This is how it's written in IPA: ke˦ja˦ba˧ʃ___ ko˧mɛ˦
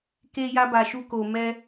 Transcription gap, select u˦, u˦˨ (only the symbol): u˦